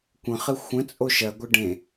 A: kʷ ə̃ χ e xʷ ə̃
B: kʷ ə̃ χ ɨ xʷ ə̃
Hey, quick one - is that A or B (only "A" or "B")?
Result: B